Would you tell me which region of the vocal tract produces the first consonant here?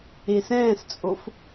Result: tongue tip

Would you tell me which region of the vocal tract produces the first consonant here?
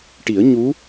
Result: retroflex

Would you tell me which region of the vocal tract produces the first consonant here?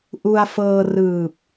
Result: throat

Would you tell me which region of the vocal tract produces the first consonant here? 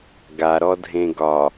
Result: velum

